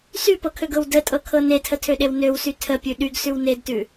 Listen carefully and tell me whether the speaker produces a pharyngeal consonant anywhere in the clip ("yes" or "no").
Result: no